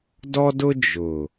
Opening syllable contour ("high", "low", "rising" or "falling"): high